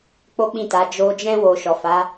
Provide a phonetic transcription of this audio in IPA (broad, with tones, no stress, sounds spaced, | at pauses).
k͡p o˦ k͡p ĩ˦˨ t a˨˦ d͡ʒ o˧ d͡ʒ ɛ̃˦ w o˧ ʃ ɔ˨ f a˨˦